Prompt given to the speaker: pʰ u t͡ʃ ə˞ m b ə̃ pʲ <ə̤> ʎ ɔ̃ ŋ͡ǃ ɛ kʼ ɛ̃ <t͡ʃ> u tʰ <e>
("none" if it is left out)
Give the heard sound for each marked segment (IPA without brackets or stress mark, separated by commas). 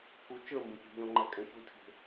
ə̤, ç, e̤